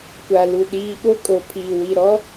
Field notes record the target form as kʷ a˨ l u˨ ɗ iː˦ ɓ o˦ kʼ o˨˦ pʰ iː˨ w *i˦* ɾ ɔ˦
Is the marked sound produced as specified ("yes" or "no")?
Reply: no